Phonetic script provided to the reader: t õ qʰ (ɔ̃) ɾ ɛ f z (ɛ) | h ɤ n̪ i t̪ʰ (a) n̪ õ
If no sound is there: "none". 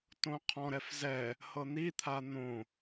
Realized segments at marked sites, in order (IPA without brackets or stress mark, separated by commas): ɔ̃, ɛ, a